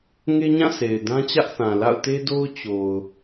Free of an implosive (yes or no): yes